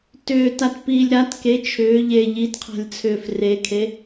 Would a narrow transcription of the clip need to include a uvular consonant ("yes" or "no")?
yes